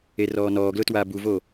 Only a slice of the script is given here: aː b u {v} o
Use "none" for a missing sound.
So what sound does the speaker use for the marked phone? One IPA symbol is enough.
v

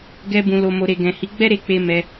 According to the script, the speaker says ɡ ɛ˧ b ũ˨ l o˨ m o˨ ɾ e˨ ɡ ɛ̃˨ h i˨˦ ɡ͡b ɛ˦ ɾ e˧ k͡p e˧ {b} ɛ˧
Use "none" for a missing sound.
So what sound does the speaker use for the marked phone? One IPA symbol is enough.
m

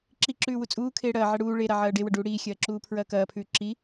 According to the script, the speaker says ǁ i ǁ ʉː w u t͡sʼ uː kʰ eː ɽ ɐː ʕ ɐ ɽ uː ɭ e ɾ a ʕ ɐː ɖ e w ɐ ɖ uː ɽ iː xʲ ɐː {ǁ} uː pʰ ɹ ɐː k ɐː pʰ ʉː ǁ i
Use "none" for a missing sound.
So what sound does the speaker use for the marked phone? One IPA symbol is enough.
ǁ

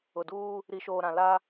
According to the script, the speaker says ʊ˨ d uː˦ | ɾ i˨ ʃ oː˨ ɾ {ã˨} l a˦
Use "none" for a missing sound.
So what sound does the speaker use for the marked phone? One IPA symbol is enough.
ã˨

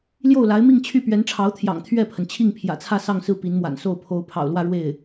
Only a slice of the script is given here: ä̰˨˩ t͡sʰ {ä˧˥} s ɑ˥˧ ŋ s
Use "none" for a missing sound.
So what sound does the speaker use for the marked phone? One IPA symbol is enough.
ä˥˧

